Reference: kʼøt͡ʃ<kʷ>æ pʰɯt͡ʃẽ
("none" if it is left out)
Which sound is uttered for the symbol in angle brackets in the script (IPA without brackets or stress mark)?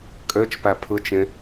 p